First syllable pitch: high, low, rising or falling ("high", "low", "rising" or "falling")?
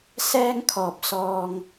high